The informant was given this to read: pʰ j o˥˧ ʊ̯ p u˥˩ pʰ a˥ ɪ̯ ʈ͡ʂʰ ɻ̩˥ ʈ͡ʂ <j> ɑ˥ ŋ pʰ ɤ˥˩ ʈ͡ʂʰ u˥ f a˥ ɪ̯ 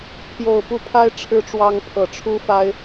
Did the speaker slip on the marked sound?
yes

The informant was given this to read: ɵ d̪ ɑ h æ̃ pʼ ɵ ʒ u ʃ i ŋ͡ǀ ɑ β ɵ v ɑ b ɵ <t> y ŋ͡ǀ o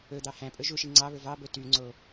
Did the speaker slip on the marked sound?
no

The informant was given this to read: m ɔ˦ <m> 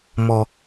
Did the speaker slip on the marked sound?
yes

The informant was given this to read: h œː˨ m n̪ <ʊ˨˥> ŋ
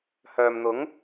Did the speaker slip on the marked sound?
no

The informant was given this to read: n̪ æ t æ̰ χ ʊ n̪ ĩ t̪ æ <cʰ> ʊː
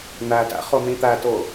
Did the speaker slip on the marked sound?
yes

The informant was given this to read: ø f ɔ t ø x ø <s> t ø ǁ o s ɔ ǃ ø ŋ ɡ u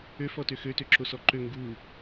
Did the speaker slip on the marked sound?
yes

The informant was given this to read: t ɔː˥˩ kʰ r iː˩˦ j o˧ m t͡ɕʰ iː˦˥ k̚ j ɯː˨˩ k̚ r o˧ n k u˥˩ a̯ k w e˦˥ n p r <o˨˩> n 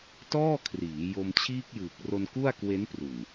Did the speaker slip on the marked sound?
yes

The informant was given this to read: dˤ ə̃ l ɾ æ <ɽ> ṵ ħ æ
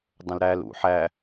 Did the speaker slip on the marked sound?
yes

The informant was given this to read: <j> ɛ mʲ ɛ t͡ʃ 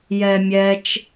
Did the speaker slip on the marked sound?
no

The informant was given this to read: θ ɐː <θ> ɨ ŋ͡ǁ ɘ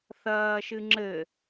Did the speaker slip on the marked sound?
yes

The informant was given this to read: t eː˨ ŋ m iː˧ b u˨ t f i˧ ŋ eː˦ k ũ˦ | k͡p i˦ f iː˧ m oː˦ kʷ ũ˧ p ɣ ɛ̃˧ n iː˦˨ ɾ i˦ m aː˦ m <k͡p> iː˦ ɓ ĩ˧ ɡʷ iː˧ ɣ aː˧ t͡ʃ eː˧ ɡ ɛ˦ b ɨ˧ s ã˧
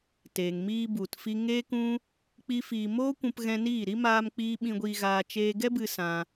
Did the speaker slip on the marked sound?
no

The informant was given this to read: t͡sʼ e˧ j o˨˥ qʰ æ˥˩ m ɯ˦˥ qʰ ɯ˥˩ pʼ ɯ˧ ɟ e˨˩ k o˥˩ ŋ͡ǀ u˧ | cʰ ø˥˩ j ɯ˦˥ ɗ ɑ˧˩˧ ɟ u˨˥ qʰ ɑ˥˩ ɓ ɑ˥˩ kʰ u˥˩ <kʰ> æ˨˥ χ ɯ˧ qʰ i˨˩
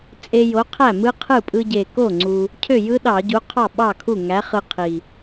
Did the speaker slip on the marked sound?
yes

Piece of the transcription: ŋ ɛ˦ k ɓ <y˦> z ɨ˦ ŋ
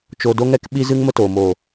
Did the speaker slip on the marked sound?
yes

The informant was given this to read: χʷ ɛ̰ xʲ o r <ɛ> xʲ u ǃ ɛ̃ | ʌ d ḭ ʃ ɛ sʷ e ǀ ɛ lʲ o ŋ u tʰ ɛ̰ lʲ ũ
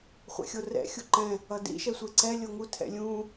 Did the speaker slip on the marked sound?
yes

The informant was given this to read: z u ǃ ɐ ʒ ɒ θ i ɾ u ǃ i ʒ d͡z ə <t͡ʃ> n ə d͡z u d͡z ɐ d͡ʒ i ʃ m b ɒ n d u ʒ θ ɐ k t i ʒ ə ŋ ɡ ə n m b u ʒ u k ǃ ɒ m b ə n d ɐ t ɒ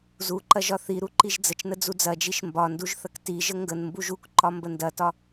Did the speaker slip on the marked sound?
no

